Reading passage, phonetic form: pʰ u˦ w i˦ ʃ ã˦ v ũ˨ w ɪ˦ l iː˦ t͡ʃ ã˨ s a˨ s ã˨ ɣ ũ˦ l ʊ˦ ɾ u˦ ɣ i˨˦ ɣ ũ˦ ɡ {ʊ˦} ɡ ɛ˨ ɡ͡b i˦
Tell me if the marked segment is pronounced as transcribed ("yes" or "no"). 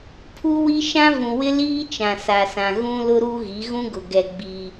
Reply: no